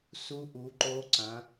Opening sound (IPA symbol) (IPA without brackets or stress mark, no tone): s